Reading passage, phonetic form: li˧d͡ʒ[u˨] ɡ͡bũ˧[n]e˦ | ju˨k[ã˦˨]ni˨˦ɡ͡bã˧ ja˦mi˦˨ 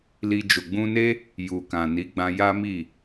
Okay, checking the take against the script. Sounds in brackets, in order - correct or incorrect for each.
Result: incorrect, correct, incorrect

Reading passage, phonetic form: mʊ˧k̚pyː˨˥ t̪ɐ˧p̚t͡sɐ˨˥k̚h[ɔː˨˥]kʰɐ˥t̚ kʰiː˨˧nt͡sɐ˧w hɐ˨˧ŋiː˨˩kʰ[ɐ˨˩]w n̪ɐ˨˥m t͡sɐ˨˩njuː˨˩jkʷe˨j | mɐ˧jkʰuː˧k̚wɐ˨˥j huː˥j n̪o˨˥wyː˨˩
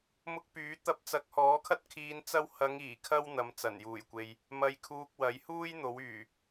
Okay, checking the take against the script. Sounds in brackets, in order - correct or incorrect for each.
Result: correct, incorrect

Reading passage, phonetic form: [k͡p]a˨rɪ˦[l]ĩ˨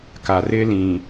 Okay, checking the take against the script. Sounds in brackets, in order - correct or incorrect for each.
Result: incorrect, correct

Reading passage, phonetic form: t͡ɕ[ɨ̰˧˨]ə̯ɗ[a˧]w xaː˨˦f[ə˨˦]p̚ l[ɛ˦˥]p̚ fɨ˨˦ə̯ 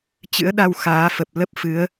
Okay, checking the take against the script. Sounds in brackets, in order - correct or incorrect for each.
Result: incorrect, correct, incorrect, incorrect

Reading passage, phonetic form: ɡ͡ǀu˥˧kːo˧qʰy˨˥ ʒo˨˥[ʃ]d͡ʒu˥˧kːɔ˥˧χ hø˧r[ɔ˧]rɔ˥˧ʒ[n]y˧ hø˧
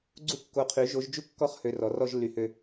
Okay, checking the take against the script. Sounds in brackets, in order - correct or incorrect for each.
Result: incorrect, incorrect, incorrect

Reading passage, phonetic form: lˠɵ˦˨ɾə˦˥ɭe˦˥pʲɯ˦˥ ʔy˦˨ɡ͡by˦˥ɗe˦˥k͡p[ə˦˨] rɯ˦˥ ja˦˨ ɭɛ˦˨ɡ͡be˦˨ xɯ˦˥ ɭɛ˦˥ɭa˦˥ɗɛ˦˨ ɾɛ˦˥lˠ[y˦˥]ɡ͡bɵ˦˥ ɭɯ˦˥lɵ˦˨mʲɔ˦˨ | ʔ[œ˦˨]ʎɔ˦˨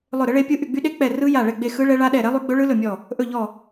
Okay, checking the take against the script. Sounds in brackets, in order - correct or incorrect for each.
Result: incorrect, correct, incorrect

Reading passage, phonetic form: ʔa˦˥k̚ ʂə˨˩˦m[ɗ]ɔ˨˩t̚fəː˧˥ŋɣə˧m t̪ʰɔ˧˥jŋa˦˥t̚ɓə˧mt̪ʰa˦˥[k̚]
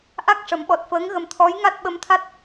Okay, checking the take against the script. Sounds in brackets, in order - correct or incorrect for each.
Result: incorrect, incorrect

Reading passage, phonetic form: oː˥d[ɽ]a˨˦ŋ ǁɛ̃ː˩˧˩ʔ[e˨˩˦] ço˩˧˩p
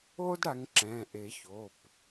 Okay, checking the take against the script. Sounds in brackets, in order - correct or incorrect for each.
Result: correct, correct

